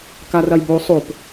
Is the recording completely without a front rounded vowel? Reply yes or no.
yes